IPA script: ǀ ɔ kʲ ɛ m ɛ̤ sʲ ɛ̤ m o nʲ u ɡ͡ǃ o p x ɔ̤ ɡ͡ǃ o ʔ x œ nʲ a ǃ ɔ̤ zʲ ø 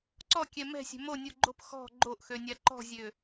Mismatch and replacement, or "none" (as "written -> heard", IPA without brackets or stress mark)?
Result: œ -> ø